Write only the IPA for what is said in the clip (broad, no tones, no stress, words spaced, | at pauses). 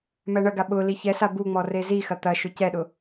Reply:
mæɳɐɡa ɓʊ liçɛsa buŋ͡mɔ rezixɐ t̪ɐʃʊ cɛɗʊ